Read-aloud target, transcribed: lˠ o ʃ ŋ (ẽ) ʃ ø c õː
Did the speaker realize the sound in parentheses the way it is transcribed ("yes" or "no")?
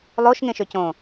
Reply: yes